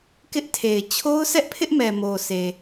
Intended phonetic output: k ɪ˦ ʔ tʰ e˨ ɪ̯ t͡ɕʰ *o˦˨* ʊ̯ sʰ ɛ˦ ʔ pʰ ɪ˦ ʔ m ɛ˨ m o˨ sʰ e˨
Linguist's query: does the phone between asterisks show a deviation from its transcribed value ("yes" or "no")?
yes